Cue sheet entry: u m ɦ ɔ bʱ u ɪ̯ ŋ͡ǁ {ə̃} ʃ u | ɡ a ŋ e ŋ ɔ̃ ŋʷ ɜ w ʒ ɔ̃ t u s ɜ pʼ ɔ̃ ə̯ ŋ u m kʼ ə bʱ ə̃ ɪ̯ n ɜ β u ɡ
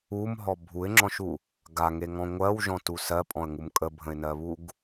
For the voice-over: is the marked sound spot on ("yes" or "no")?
no